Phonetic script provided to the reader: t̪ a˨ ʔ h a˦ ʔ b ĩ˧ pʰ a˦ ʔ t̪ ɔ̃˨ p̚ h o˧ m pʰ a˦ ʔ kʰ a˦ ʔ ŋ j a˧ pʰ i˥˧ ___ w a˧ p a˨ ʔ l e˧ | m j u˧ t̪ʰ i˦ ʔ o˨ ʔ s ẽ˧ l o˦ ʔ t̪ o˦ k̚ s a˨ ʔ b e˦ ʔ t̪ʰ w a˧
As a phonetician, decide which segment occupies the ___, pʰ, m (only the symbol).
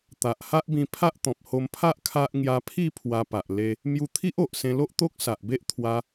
pʰ